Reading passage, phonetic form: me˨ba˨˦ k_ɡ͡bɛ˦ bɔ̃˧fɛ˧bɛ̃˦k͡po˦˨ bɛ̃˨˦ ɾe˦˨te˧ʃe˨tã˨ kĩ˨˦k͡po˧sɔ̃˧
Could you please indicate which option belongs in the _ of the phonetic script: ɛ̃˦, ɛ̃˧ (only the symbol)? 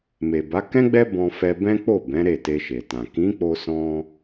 ɛ̃˦